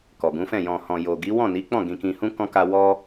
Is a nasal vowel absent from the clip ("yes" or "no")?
no